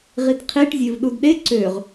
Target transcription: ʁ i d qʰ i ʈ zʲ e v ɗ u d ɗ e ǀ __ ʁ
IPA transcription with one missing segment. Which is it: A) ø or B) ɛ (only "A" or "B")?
A